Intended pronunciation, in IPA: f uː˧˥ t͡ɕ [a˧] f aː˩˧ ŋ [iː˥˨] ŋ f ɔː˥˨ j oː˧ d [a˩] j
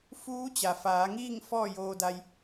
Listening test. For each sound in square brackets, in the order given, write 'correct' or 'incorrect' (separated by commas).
incorrect, correct, incorrect